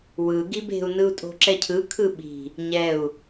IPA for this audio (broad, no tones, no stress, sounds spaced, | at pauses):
w ɯ ɡ i b e̤ u̯ n ɯ u̯ tʼ o̤ ǁ ɛ cʰ ɯ kʰ ɯ ɓ i̤ | ɲ ɛ u̯